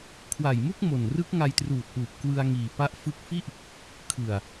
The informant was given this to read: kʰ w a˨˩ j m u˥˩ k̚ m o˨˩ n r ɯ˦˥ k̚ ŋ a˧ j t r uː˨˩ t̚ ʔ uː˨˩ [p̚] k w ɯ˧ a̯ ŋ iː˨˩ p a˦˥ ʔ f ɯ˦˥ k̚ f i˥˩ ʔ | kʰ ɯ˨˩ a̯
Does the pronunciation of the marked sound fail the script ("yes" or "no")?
no